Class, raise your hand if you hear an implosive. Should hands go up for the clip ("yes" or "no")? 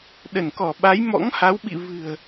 yes